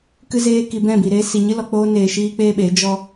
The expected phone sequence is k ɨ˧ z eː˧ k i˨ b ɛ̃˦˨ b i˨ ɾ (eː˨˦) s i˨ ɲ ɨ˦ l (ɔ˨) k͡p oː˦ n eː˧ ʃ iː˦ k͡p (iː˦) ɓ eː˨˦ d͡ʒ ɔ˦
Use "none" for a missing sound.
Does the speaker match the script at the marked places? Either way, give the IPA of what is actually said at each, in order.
eː˦, ɔ˨, eː˦

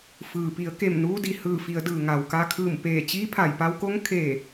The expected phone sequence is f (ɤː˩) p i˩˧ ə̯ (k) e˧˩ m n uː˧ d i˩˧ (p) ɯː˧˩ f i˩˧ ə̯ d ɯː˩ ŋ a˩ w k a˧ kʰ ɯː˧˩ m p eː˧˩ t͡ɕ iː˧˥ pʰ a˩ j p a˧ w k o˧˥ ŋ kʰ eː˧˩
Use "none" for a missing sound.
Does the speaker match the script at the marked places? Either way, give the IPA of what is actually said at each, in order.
ɯː˩, k, h

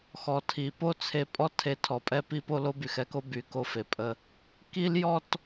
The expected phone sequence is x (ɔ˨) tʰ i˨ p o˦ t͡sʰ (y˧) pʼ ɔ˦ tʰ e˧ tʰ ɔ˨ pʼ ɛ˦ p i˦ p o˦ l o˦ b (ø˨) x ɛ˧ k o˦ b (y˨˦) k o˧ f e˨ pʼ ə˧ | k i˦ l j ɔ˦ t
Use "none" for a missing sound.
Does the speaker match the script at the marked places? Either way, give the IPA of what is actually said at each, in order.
ɔ˨, e˧, y˨, y˨˦

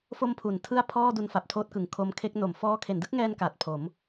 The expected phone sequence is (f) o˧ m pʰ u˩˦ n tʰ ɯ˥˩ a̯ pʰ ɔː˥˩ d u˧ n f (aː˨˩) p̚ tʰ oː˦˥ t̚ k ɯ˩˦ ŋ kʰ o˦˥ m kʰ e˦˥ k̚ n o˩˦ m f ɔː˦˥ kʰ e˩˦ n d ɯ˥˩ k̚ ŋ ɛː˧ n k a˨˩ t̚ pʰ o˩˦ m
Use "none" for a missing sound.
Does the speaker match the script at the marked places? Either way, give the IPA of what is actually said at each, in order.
f, a˨˩

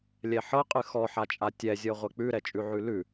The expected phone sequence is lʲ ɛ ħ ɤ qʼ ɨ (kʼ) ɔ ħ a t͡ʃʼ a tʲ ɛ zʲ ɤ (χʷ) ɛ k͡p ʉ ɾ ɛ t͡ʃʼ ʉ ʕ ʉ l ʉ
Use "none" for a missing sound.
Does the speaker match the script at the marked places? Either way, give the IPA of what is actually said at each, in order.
x, ʁʷ

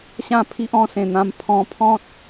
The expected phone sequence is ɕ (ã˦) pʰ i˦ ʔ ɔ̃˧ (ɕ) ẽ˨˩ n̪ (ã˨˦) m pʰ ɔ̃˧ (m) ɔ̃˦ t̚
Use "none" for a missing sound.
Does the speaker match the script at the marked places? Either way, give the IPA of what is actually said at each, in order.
ã˥˧, s, ã˧, pʰ

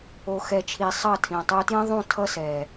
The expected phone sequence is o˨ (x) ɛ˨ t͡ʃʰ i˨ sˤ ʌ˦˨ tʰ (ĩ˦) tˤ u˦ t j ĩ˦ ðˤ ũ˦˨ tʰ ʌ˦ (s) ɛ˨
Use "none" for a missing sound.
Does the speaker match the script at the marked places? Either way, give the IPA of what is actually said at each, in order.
x, ĩ˨, s

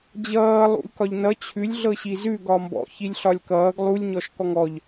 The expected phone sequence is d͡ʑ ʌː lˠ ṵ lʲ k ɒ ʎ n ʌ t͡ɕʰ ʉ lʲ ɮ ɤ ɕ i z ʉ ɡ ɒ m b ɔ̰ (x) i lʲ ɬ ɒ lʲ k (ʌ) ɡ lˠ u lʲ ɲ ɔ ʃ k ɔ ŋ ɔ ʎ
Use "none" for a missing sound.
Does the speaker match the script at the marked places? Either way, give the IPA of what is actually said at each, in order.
ç, ʌː

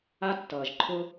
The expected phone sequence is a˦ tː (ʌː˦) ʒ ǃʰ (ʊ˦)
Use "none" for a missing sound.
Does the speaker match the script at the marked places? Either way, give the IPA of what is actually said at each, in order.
ʌː˨, ʊ˦

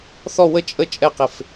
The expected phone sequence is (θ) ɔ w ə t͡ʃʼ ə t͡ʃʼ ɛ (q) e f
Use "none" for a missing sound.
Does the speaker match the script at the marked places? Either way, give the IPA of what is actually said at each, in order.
θ, q

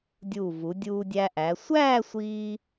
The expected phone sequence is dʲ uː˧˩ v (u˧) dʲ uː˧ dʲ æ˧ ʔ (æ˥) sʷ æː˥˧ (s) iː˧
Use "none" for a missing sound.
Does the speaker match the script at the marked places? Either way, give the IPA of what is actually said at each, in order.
u˩˧, æ˩˧, sʷ

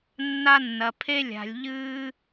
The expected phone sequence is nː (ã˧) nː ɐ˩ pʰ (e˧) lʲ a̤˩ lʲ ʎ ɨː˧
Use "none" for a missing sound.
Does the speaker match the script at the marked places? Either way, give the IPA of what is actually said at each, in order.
a˧, e˧

